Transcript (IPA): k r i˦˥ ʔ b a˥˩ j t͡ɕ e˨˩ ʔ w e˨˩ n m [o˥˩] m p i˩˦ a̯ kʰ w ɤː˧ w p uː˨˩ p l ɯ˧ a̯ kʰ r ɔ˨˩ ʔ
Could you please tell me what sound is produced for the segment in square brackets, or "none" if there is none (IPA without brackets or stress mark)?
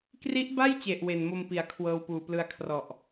o˧